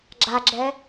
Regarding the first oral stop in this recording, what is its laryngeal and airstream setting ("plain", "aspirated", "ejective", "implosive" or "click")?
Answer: click